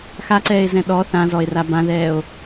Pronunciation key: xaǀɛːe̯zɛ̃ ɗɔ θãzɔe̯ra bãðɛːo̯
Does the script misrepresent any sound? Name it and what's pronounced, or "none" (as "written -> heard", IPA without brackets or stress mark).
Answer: none